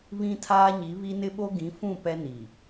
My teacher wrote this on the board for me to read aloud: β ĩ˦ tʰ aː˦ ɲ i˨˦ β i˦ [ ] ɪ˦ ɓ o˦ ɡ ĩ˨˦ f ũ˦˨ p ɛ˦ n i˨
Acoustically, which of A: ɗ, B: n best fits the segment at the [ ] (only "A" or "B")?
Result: B